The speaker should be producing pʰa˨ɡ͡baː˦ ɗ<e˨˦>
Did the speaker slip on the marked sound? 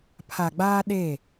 yes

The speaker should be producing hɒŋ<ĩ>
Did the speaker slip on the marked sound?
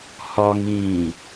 yes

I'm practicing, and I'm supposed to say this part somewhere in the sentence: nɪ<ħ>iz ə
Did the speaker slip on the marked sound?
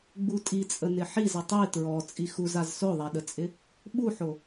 no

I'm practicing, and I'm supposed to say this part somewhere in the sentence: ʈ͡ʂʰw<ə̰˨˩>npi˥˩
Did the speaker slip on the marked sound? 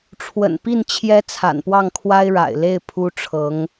no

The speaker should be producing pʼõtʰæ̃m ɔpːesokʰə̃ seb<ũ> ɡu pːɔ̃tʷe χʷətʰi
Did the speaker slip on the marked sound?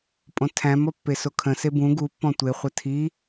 no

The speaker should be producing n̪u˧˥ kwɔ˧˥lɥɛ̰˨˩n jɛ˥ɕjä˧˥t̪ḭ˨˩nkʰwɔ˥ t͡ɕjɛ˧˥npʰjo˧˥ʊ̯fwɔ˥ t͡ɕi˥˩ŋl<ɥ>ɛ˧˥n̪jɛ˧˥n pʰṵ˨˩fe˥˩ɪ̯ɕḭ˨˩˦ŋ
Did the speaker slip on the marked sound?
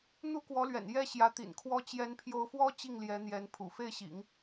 yes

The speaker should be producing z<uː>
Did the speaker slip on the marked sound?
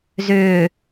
yes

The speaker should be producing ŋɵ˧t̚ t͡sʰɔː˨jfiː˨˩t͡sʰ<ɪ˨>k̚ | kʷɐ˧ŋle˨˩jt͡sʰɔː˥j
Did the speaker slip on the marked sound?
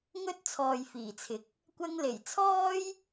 no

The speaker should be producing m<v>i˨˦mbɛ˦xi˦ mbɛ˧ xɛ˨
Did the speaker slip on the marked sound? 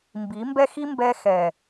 yes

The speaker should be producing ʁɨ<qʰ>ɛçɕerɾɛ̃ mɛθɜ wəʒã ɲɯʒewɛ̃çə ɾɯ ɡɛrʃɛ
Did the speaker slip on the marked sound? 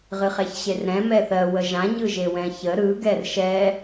yes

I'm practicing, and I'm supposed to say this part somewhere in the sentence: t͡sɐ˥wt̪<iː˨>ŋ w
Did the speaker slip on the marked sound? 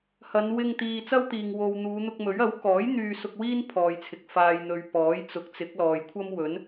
no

